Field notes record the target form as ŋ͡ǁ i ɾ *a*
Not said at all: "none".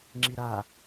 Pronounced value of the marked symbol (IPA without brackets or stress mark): a